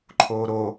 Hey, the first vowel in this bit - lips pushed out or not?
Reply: yes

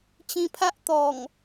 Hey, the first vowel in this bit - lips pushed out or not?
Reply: no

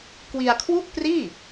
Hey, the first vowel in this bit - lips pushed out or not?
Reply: no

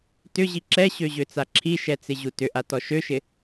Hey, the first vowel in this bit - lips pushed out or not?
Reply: yes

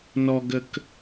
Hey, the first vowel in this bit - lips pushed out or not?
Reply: yes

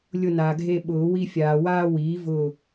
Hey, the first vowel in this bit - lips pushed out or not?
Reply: yes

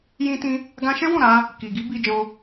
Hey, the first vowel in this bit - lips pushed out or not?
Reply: no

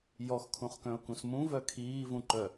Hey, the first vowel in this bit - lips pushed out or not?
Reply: yes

